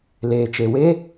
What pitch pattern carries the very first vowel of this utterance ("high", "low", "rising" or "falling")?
low